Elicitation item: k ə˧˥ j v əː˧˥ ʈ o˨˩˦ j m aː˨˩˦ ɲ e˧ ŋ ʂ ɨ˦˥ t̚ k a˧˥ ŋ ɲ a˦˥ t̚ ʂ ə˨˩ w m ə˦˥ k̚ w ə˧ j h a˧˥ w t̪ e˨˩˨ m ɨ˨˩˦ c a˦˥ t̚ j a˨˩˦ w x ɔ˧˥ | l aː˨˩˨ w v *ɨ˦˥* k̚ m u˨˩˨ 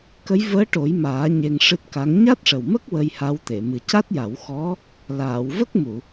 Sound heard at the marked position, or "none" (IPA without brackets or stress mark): ə˦˥